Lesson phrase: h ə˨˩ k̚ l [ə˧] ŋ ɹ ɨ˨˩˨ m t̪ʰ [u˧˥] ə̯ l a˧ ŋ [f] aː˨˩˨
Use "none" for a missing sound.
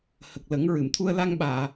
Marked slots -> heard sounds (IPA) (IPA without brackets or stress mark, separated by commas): ə˨˩˦, u˧, ɓ